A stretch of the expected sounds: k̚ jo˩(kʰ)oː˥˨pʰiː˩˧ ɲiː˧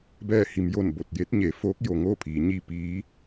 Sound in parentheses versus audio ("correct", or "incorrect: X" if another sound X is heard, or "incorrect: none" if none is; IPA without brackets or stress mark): incorrect: ŋ